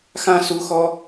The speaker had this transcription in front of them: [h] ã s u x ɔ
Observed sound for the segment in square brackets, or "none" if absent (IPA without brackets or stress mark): x